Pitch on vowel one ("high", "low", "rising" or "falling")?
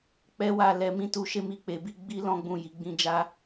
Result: high